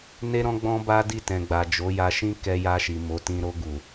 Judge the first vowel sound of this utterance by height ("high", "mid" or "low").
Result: mid